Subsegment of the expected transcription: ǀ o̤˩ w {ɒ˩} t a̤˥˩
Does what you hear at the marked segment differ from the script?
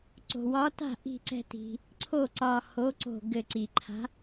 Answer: yes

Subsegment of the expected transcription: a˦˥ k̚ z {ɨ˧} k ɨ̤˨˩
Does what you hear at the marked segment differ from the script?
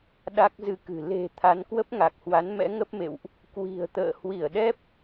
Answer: no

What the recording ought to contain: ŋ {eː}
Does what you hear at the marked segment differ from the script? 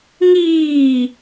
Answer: yes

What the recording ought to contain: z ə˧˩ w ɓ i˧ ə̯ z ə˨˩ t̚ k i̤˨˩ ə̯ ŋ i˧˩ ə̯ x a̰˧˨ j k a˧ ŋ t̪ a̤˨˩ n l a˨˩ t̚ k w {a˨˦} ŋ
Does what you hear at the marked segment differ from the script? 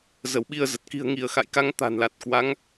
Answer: no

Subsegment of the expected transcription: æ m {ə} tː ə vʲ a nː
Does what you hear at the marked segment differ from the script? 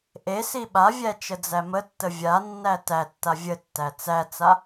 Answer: no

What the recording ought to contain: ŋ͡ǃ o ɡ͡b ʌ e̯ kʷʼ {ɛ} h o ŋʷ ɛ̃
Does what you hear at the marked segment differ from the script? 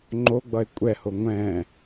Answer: no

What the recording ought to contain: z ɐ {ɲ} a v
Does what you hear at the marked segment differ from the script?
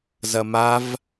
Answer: yes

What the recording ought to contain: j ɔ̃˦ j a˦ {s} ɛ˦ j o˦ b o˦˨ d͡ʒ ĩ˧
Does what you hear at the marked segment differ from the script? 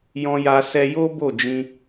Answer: no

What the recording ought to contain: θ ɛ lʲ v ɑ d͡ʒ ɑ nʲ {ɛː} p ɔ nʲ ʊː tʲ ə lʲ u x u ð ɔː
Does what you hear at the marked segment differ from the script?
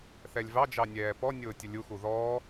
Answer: no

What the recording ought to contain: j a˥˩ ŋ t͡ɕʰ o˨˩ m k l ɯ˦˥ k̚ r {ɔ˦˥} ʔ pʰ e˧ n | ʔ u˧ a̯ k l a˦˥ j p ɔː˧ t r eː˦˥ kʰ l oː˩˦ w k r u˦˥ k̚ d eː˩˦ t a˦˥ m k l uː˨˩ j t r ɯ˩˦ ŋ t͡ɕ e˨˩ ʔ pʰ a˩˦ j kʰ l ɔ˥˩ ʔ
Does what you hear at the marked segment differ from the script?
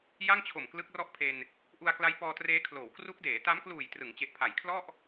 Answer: yes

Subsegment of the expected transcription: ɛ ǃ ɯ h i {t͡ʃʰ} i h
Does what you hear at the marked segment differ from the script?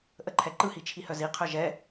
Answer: no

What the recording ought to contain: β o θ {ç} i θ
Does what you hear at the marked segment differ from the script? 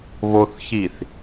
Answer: no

